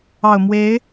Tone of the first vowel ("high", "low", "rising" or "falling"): low